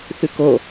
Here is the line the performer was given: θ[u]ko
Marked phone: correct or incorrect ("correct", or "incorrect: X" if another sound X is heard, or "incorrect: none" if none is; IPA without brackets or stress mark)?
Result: incorrect: ʉ